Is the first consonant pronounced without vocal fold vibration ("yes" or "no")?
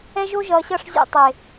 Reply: no